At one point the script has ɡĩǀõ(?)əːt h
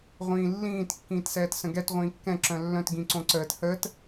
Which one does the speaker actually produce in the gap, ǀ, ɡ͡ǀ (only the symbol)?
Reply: ǀ